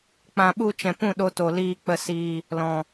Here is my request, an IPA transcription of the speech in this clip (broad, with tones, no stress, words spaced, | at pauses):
k͡pã˨ɓu˧ t͡ʃɛ̃˨pũ˦˨ɗo˧to˨ liː˧k͡pə˧ siː˧ | lɔ̃˨